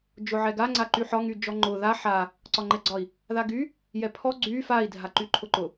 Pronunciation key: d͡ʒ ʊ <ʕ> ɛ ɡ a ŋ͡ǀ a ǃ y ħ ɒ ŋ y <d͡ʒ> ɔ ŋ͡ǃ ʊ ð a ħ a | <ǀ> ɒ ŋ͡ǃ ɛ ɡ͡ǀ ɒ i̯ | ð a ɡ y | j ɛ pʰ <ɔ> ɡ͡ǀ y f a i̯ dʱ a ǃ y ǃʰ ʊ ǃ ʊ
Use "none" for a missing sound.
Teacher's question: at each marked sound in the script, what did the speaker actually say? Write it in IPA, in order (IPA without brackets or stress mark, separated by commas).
ʕ, d͡ʒ, ǀ, ɔ